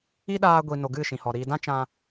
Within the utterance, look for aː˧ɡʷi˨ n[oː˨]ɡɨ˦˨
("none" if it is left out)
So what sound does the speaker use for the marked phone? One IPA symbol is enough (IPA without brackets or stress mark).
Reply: o˨